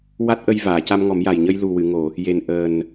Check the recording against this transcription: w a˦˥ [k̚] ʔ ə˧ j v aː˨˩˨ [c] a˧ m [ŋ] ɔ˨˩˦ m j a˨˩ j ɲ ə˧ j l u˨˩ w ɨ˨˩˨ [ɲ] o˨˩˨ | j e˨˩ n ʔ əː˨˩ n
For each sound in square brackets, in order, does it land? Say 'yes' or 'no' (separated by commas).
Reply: no, yes, yes, no